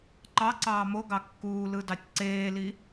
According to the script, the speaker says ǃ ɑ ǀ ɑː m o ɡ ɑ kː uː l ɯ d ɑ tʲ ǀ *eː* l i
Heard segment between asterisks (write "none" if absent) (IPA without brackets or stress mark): eː